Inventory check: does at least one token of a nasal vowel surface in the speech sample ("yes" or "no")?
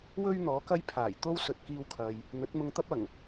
no